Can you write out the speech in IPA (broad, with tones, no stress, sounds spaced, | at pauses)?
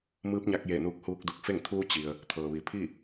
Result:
m ɯː˧˥ p̚ ɲ a˧ k̚ j e˧˩ n uː˧ k̚ h uː˧ k̚ d u˧˩ k̚ f e˥˨ ŋ t̪ʰ uː˧ t͡ɕ i˩ ə̯ | t̪ʰ ɤː˩ ʋ i˩˧ pʰ i˥˨